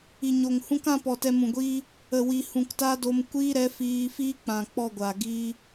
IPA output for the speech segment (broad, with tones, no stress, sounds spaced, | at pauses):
i˨ ɲ o˨ ŋ h ũ˦ k ã˦ p ɔ˨ t ɛ˧ m ũ˨ ɡʷ iː˦ | ə˨ w i˨ h ũ˨ k t a˦ d o˧ m kʷ iː˦ ɾ ɛ˨˦ f iː˧ f iː˦ k͡p ã˨ k͡p ɔ˦˨ ɡʷ a˨ ɡ i˧